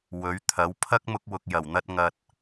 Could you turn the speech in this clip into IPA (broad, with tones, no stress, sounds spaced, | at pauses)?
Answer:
w ɵ˨˥ ɥ t̪ʰ ɐ˨˥ w pʰ ɐ˥ k̚ m ʊ˧ k̚ w ʊ˨ k̚ j ɐ˨˩ w n̪ ɐ˧ t̚ ŋ ɐ˨ t̚